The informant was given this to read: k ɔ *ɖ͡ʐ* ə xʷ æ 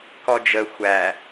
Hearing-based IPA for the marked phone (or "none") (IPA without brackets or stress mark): d͡ʒ